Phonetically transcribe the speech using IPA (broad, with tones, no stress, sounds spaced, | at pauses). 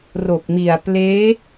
r o˨˩ k̚ m i˨˩ a̯ p l eː˦˥